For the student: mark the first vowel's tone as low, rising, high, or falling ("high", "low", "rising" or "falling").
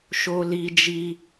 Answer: high